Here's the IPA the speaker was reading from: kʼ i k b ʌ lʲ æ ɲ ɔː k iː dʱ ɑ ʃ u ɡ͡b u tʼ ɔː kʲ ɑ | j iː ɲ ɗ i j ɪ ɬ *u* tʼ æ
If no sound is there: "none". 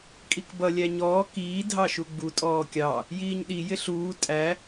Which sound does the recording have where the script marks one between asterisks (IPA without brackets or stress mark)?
uː